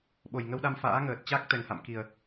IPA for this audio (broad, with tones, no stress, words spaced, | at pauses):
ɓo˨˩jŋə˧wɗa˧m fa̰ː˧˥ŋəː˨˩t̚t͡ɕa˦˥k̚ t̪ɛ˨˩ŋha̰˧˨mki˨˩ə̯